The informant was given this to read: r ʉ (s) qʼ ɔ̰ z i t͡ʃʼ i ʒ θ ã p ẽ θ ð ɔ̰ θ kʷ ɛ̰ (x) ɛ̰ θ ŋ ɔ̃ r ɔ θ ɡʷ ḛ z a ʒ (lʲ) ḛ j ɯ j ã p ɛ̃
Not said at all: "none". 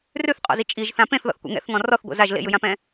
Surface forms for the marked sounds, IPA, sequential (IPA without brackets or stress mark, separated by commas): θ, ŋ, l